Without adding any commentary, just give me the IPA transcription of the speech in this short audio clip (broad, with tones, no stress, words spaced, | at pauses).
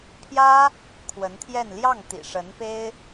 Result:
pʰjä˥ | kʰwə˧˥nt̪ʰjɛ˥˧n ljɑ˥˩ŋ t̪ḭ˨˩ʂə˧˥npe˥ɪ̯